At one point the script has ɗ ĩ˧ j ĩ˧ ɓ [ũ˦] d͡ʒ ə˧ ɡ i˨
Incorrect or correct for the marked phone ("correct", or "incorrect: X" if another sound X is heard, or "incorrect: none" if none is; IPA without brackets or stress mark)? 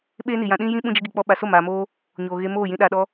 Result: incorrect: ũ˧